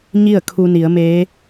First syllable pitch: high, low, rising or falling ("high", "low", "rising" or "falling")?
falling